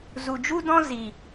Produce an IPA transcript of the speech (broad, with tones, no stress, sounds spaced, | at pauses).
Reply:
z u˨ d͡ʒ u˦ d ɔ̃˦ z i˨